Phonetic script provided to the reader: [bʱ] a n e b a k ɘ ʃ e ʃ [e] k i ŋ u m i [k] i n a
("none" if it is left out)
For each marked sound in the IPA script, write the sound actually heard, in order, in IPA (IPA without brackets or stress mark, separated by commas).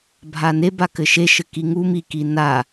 bʱ, ɘ, k